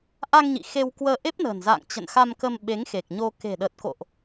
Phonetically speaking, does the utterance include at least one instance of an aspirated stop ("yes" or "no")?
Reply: no